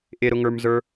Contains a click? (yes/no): no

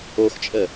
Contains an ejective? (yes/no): yes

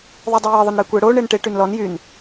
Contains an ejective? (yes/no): no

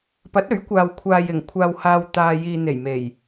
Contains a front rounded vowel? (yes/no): no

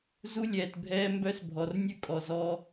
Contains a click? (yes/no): no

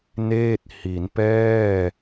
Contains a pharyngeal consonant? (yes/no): no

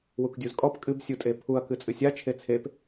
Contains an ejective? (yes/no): yes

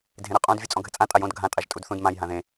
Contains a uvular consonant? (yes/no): yes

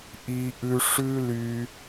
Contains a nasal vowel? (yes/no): no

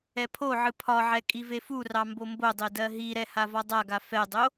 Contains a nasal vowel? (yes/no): no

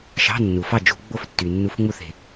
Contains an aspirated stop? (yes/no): no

